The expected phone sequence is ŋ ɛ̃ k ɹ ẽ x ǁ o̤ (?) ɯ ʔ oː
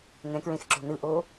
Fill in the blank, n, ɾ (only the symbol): n